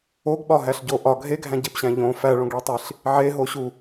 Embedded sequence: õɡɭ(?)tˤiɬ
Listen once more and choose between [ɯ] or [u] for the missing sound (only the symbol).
u